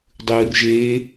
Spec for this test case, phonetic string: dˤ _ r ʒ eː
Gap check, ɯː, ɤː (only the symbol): ɯː